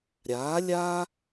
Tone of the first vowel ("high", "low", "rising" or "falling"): rising